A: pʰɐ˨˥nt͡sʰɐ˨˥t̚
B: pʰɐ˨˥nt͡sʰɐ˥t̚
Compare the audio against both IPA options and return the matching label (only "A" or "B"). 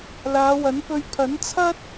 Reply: B